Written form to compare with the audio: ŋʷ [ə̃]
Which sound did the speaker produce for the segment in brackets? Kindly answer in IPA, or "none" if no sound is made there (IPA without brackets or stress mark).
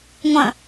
ə̃